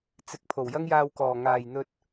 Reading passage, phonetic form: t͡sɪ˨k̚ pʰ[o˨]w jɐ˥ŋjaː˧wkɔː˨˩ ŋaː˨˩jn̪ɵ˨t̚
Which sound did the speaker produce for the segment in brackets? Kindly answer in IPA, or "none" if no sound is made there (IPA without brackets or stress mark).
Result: o˨˩